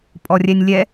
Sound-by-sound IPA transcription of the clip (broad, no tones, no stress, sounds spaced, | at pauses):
pʼ ɔ rʲ ɛ nʲ lʲ ɛ